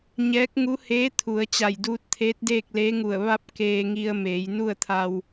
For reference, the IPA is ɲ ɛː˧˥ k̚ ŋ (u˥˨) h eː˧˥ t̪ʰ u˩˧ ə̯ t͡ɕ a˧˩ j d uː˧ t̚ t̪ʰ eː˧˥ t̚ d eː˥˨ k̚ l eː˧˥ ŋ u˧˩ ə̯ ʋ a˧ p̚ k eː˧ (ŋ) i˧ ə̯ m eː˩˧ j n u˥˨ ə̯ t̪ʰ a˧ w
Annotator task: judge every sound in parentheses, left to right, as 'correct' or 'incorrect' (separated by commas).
incorrect, correct